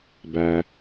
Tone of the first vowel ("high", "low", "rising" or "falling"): low